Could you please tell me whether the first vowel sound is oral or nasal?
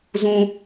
nasal